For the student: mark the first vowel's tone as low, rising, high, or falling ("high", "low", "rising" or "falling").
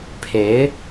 rising